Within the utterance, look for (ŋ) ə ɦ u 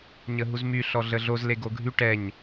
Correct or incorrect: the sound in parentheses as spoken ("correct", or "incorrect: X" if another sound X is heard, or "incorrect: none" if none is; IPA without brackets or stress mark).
incorrect: ɲ